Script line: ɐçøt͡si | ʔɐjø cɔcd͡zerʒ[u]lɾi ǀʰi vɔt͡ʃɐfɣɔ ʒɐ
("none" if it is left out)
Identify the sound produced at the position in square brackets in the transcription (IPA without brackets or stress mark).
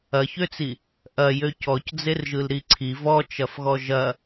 ɯ